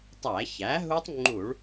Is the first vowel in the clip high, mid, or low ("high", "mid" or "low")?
low